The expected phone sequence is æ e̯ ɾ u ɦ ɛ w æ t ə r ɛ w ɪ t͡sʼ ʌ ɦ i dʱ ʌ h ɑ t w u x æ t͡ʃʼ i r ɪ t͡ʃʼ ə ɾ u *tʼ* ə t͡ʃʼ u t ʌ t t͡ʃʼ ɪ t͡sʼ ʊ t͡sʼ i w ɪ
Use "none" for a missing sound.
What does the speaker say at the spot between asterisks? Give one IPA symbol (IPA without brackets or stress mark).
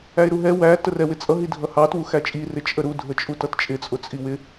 dʱ